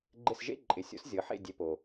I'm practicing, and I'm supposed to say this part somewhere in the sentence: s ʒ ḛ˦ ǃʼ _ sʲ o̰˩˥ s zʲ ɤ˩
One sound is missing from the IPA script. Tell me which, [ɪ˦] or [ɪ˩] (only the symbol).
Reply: ɪ˩